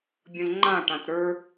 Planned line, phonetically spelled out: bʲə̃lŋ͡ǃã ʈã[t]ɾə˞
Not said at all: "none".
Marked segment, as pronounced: t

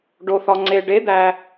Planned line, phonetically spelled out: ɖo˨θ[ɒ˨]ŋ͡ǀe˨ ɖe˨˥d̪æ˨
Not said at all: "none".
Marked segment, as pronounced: ɒ˨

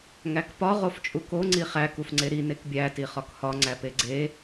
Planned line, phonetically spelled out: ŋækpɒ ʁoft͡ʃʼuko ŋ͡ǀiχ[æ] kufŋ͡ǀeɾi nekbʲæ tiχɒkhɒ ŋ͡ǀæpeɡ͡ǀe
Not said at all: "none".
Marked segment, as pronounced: æ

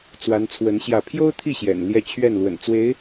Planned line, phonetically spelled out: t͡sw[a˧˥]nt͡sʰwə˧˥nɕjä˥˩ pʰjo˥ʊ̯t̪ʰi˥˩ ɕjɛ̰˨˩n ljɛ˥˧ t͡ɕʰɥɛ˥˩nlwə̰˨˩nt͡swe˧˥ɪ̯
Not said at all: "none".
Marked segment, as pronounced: a˧˥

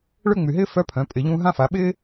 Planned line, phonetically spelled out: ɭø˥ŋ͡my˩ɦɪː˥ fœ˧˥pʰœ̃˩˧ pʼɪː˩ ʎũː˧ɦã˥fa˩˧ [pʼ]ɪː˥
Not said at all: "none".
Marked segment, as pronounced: ɓ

